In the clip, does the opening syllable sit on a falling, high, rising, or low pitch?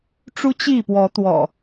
high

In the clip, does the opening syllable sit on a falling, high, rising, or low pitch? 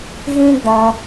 high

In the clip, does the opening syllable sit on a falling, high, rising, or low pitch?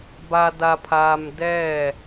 low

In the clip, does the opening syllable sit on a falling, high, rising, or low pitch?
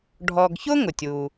low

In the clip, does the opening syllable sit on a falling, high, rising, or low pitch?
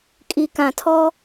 low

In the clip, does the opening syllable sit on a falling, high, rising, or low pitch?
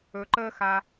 low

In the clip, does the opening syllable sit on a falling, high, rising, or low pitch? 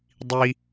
high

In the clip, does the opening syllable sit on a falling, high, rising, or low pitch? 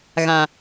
low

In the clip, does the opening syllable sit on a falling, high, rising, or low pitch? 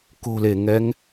low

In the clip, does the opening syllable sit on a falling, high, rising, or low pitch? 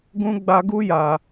high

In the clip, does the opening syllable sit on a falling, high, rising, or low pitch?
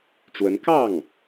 rising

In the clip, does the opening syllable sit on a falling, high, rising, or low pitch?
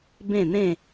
falling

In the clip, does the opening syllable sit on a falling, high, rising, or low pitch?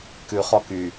low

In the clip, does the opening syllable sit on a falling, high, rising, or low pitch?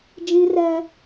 high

